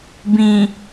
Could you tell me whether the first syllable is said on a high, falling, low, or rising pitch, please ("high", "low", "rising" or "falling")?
low